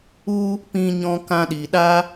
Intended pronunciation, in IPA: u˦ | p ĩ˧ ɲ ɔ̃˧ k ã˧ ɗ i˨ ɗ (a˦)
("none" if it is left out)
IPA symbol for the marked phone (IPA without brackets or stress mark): a˦